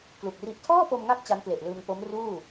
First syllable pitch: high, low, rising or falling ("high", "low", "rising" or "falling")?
low